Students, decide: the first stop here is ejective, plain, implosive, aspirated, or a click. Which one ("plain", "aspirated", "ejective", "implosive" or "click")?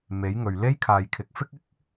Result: aspirated